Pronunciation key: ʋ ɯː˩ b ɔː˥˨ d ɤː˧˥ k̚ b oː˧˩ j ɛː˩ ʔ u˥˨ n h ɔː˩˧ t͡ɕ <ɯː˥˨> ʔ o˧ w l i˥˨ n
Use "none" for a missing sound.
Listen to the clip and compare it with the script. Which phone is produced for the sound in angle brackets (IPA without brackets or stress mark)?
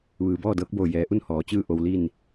ɯː˥˨